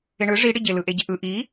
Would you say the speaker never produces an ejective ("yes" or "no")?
yes